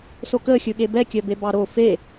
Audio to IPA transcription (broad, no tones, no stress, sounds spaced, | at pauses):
s o k əː xʲ ɯ ɠ e b ɛ kʲ œ b e b ɑ ɾ o f e